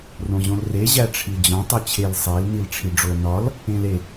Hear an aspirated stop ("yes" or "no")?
yes